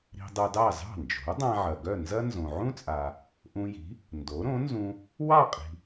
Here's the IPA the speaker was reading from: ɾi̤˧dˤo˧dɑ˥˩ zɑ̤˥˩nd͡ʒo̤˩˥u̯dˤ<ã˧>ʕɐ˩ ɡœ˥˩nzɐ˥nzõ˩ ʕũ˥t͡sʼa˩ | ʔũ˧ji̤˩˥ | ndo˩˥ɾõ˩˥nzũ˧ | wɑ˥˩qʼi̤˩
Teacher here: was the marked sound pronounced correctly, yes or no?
yes